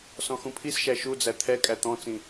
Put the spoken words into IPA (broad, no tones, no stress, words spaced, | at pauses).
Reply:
sɔ̃xũpʰisʃæ ʃud͡zæ t̪ʰɛ kʼæt̪ɔ̃t͡sĩ